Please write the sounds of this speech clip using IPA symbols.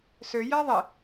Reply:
søjæ ðˤe

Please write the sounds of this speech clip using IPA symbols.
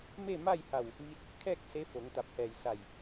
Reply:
me˥˨ma˥˨jha˧˩w | ʋi˧˥t̚ | kʰɛː˥˨k̚ se˧˥fo˩˧ŋt̪a˧˩p̚ hɛː˧˩jsa˧˩j

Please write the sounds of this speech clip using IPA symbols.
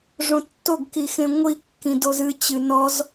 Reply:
ʐõtːoɡkixẽ ŋʷikːĩ dozɨ t͡ɕɨnɔz

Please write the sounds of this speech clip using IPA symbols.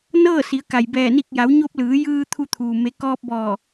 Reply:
nɤː˥˨si˩˧ə̯ka˩jbɛː˧˩ ni˧˩k̚ja˩˧w ɲo˧p̚lɯː˩˧ jɯː˧ t̪ʰu˧t̪ʰuː˩ me˩˧kɔː˧p̚bɔː˧˩

